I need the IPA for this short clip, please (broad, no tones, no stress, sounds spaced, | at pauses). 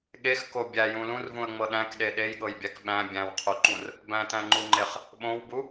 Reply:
ɠ e x k o bʲ æ j ũ l ũ r v ũ ə̯ ŋ͡m ɤ ɗ æ̃ k ɗ e ɗ e j ɠ ɤ j bʲ æ k ɓ æ̃ bʲ æ̃ w qʰ u ǃ ũ r | b æ̃ t æ̃ ŋ͡ǃ u ŋ͡ǃ e χ | ɓ õ w b u